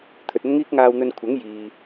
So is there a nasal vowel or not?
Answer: no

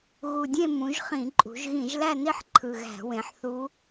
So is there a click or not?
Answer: yes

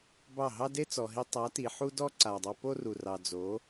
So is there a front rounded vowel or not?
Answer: no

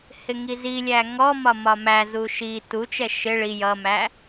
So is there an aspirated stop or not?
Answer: no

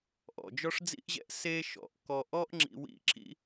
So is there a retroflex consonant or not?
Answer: yes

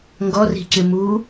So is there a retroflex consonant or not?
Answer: no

